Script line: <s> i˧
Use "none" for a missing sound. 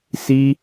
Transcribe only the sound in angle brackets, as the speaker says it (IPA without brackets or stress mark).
s